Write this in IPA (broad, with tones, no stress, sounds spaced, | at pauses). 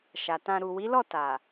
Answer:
ʃ a˨ t ã˧ ɾ u˨ w i˨˦ l ɔ˦˨ t a˨